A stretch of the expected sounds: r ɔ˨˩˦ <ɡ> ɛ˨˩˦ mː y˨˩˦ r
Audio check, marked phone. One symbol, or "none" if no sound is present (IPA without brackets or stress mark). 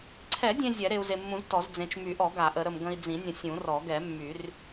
ɡ